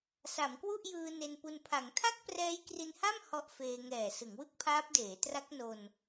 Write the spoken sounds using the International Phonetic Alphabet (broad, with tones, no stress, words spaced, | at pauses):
sa˩˦mkwu˥˩ʔjɯː˧ ne˧npu˧n pʰa˩˦ŋtʰa˥˩k̚ prɛː˦˥jkri˧nha˥˩m hɔ˦˥ʔfeː˧ ŋɛː˨˩ sɯ˩˦ŋwɯ˥˩k̚pʰaː˦˥p̚deː˩˦ tra˦˥k̚no˧n